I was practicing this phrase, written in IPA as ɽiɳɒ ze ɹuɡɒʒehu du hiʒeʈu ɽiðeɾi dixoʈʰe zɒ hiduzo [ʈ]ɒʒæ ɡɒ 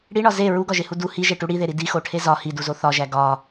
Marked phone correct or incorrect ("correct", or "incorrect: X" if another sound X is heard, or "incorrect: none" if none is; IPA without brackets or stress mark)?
incorrect: θ